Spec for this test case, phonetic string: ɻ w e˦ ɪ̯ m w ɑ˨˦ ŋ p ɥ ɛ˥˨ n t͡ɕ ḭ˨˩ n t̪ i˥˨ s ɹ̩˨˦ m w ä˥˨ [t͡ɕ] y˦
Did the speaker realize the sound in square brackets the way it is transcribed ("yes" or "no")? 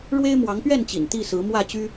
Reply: yes